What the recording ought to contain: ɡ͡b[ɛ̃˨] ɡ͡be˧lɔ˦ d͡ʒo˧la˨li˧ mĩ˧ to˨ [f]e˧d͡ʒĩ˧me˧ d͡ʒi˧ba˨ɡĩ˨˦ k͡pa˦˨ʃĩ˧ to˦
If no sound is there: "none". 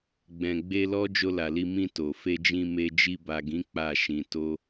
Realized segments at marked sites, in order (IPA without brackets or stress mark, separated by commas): ɛ̃˨, f